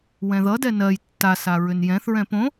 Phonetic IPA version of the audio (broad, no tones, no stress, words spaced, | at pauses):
wɛ̃ðʌdɛ nɜj tːasa ɹʏnjɛ̃θɹɛ̃ põ